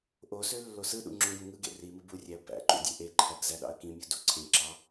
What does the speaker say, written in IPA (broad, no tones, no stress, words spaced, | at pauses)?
ʔosø lːosɯɗṵ ŋ͡ǁõɡõ ŋɯɡḛ rimɯ burʲæə̯ bæ̰ǃṵ dʲøʔeǃʰæɡ zæɗɑ̰ə̯kĩmʲu duǀʰẽǁɑ